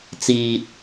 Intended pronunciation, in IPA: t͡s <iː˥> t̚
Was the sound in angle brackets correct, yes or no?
no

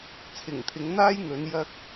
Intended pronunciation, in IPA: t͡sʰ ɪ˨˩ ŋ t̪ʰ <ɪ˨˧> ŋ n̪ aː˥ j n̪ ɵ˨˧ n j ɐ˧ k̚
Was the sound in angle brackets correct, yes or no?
yes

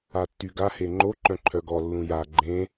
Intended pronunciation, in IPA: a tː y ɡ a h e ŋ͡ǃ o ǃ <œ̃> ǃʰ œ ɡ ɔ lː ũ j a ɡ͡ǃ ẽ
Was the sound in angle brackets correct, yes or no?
yes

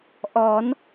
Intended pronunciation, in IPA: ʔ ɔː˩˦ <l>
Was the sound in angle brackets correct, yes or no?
no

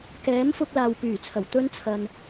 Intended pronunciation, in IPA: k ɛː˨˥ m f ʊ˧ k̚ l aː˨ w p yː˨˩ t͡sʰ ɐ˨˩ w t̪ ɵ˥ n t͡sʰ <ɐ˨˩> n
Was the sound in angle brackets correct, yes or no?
no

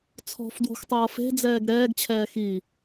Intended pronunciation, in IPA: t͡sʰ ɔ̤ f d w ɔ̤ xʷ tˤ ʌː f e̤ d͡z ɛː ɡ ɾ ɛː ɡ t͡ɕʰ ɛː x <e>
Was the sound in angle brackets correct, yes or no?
no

